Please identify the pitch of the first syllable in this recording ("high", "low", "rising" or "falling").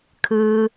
low